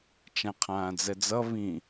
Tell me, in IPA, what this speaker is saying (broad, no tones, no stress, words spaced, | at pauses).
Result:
t͡ʃãqʰãːd͡zɛd͡zʌ βĩ